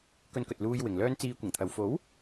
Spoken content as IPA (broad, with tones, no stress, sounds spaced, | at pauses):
k ɵ˧ n k ɵ˨ t̚ l uː˧ j w ɪ˨ ŋ l œː˥ n t͡s iː˧ kʷ ɪ˨˩ ŋ t̪ʰ ɐ˨ w f o˨˥ w